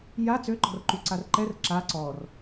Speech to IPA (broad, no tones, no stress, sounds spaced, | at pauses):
j a t͡s ø ǃ ɔ̤ r ǃ y ǀ a r ǃ ɛ r ǁ a ǀ ɔ r